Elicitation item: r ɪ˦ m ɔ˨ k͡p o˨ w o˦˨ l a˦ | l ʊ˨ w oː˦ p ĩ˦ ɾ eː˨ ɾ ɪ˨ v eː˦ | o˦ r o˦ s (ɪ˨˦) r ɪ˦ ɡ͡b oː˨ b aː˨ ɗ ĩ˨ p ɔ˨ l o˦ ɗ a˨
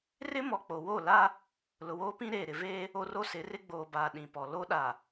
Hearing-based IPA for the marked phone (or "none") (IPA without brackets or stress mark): ɪ˨˦